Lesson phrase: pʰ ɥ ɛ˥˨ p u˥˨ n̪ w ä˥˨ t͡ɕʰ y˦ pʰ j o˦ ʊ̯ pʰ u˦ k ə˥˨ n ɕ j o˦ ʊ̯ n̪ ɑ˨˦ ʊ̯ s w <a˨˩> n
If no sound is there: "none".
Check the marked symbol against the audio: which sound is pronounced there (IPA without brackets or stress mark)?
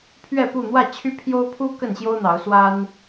a˦